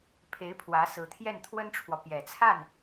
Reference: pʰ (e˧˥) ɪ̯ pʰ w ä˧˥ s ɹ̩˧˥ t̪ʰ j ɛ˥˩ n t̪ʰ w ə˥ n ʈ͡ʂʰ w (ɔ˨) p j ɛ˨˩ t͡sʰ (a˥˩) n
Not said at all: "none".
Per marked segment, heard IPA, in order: e˧˥, ɔ˨, a˥˩

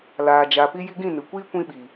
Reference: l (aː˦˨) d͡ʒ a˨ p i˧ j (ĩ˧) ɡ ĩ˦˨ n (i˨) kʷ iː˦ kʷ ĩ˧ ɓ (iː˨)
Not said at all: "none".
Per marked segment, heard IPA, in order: aː˨, i˧, ɨ˨, i˨

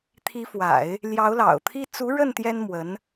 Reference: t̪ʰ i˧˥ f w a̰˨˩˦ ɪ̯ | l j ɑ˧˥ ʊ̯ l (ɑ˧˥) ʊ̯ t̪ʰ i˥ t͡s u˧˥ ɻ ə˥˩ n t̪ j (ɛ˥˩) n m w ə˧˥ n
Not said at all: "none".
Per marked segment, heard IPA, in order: ɑ̰˨˩, ɛ˥

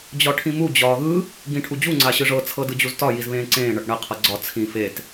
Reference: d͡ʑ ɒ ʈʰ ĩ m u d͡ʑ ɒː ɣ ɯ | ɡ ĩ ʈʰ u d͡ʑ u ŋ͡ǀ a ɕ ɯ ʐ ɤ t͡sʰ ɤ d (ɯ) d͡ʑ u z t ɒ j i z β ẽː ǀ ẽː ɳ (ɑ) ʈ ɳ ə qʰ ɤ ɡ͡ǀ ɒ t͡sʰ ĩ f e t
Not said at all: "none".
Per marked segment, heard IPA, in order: ɯ, ʌ

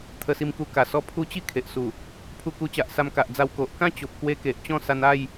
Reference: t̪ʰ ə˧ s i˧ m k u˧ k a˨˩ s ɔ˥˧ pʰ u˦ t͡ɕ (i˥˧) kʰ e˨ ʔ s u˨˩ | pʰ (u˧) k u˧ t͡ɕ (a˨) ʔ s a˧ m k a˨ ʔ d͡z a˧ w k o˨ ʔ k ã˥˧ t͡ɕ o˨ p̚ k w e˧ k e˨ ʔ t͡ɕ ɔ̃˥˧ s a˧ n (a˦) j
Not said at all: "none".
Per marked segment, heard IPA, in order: i˥˧, u˧, a˨, a˥˧

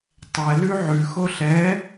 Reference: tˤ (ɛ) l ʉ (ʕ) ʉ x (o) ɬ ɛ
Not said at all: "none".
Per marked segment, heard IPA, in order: ɛ, ʕ, o

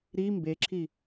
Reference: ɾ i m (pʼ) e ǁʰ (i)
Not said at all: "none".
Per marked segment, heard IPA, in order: b, i

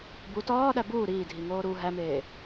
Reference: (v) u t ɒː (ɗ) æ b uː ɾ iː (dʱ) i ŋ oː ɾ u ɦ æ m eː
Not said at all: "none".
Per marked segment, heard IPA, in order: b, ɗ, dʱ

